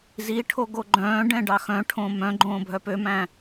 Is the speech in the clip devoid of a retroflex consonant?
no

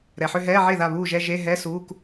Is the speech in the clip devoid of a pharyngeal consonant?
no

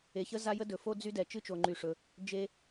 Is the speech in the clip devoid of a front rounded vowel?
no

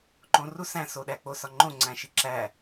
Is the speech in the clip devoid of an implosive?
no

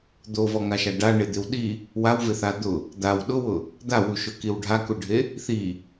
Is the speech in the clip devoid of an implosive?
no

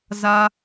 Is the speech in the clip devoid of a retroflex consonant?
yes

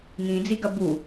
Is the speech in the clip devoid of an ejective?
yes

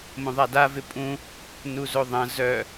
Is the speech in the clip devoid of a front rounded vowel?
no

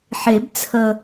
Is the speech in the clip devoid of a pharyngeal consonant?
no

